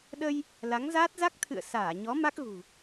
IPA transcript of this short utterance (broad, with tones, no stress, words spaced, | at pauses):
ɗə˧j | la˨˦ŋzaː˦˥t̚ za˦˥k̚t̪ʰɨ̰˧˨ə̯ saː˧˩ɲɔ˨˦ ma˦˥k̚ɣṳ˨˩